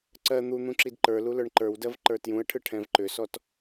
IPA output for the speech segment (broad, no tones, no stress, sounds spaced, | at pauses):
ǀ ɜ n̪ u n̪ ũ ǁ i d ǃ ə˞ l u l ə˞ ɳ ǃ ə˞ w d ɜ v ǃ ə˞ t j ũ ə̯ ʈʰ ɯ ʈʰ ɛ̃ v ǃ ʏ s ɔ t